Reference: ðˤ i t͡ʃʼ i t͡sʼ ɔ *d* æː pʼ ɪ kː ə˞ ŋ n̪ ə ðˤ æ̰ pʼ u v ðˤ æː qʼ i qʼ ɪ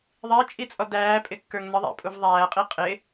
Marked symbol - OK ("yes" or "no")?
yes